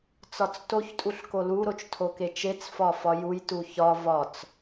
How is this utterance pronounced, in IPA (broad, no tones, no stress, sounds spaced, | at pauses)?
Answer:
t͡s ɒ t͡s t o ç tʼ u ɬ k o l u ɾ o t͡ʃ tʰ o k e t͡ʃ e t͡s f ɒ f ɒ j u j t u ç ɒ v ɒ t͡s